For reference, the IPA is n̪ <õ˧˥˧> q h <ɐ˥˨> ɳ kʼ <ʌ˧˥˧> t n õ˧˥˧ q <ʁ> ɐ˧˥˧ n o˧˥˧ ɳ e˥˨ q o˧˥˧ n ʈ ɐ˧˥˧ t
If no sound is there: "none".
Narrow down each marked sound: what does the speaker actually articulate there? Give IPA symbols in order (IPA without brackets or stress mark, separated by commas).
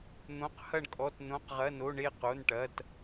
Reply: õ˧˥˧, ɐ˥˨, ɔ˧˥˧, ʁ